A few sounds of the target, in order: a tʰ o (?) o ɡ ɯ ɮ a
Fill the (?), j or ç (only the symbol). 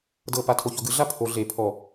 ç